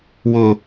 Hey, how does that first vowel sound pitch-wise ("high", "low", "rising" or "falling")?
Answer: high